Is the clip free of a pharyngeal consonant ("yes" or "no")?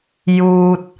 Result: yes